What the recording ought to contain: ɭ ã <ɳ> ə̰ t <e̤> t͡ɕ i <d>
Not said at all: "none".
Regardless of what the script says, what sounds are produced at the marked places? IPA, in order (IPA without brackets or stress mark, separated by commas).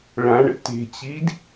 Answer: ɳ, e̤, d